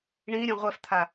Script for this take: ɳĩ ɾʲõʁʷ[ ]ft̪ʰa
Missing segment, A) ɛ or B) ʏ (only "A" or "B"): A